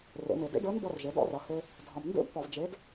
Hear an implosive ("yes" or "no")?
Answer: no